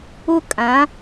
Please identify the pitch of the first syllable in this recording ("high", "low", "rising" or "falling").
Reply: high